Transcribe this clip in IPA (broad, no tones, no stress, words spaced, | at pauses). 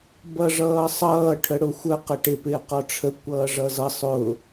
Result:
bʌʐʌːsˤʌː ʈʰəɽʊxʷə qəʈɪ pɪːqɔʈ͡ʂʰə kʷʌːʐʌzʌ sˤʊ